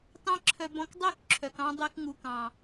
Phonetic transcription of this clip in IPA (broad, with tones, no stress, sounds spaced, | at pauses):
t ɑ̃˦ ǁʰ œ˧ b ɔ̃˧ k dˤ ø˦˨ k ǁʰ œ˨ k ɑ̃˧ dˤ e˧ k ŋ u˨ k ɑ̃˨